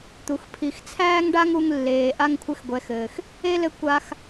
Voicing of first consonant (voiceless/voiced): voiceless